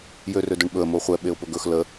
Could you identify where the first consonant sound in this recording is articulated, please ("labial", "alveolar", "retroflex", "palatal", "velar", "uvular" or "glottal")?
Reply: palatal